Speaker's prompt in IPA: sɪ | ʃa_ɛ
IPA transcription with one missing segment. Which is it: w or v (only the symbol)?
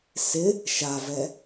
v